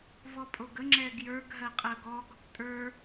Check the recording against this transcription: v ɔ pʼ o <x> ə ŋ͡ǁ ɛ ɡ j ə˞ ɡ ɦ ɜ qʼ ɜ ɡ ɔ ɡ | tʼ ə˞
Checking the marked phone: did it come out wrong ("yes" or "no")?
yes